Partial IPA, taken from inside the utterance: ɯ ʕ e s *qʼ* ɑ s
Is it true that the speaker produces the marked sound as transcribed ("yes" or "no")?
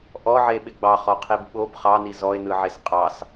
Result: yes